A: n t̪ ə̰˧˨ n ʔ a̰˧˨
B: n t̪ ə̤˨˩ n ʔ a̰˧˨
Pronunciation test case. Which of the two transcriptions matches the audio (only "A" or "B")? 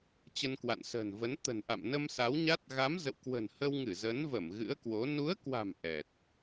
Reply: B